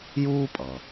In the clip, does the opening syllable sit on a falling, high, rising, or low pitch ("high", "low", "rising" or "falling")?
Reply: high